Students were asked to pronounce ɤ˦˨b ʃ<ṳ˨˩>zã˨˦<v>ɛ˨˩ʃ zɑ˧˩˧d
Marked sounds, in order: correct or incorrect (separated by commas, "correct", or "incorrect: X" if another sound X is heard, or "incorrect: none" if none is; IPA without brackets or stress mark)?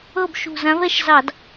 correct, correct